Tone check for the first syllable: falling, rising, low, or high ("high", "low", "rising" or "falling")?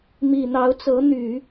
low